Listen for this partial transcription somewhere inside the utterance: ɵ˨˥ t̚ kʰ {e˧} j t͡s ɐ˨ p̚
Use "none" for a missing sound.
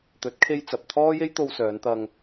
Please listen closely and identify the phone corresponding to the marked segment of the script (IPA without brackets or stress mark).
e˧